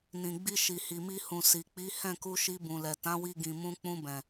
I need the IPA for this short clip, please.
n ĩ˨ ɡ͡b i˧ ʃ i˨ h i˨ m i˧ h ũ˨ s i˨ k͡p i˨˦ h ɛ̃˦˨ k u˧ ʃ i˧ b ũ˨ l ɛ˨ t ã˨˦ w i˧ ɡ ĩ˨ m ũ˧ k͡p ũ˧ b ɛ̃˨

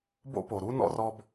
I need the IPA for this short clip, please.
b o̰˥ p o˩ ɾ u˥ n ɔ̰˥ r ɔ˥ b

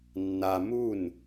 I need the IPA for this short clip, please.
nː a m u n

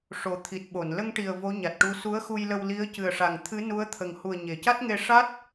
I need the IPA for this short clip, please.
ʂ o˨˩ t̪ʰ i˨˩ t̚ ɓ o˨˩˨ n l ə˧ ŋ ʈ i˨˩ ə̯ v o˧˥ ɲ a˨˩ t̚ ʈ u˧˥ s u˧˥ ə̯ x u˧ j l ə˧ w l i˧˥ ə̯ c ɨ˨˩ ə̯ ʂ a˨˩ ŋ t̪ʰ ɨ˧˥ n u˧˥ ə̯ t̪ʰ ə˨˩ ŋ h u˨˩ ə̯ ɲ e˨˩˨ c a˦˥ t̚ ŋ e˧ ʂ a˦˥ t̚

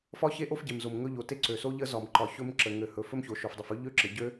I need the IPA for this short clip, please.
f ɒ˥ ç e˥ ʔ o˥ f ɟ e˩ m z o˩ m ŋ ɵ˥ ʎ o˩ t e˥ ǀ ø˩ s o˥ ʎ ə˥ z ɒ˩ m ǃ ɒ˩ ç ɵ˥ m ǁ ə˩ ŋ ø˩ h ɵ˩ f ɵ˥ m ç o˩ ʃ o˩ f dˤ ə˩ f ɵ˥ ʎ ø˥ ǁ ə˩ ɟ ø˥

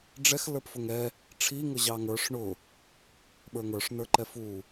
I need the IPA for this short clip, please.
ɖ͡ʐ ɛ x l ə˞ p f ʊ ŋ ɛ | ʈ͡ʂʰ i ŋ ʊ ʑ ɑ ŋ ə˞ ʂ ɳ ʊ | ɓ ə˞ ŋ ə˞ ʂ n ə˞ ǃ ɛ f u

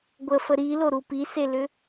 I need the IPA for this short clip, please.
ɡʷ ə f ə ɾ i l o ɾ u p i s e l ʏ

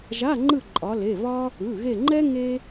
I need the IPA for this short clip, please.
ʒ a˧˥˧ ŋ͡ǃ ɯ˦˨ ǃʼ ɒ˩˧ l e˩˧˩ β ɒ˥ | ɯ˩˧˩ ɣ e˦˨ ŋ͡ǃ ɛ˥ ŋ e˥

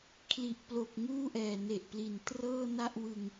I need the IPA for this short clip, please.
kʰ l i˨˩ ʔ p l o˨˩ k̚ ŋ uː˥˩ ʔ ɛː˨˩ n e˨˩ ʔ p l i˨˩ n t r ɤː˥˩ n a˥˩ ʔ w ɯ˧ ŋ

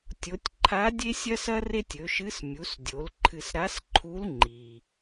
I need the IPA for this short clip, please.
tʲ o˩˧ tʲ ǃʰ a˧˥ dʲ e˥ sʲ ɐ˥ s ɐ˥ r e˥ tʲ ɵ˩˧ ʃ ɨ˧˥ s mʲ u˩˧ s dʲ o˩˧ l ǃʰ ɨ˧ s ɾ a˧˥ s ǃʰ u˧˥ l ŋ͡ǃ i˩

